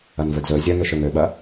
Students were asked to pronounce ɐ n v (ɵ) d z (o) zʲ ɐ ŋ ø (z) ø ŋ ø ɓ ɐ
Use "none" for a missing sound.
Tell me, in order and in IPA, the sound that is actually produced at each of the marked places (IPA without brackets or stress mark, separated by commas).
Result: ɵ, ɵ, ʃ